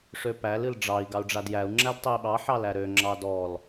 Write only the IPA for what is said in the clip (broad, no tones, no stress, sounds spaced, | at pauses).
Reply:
ʂ ø p æ l ɨ l ɖ͡ʐ ɑ i̯ ɡ ɑ u̯ ɖ͡ʐ a d j æ u̯ ŋ͡ǁ æ d tˤ e i̯ ɓ ɑ ħ ɑ l æ ɾ ø ŋ͡ǁ ɑ d ɔ l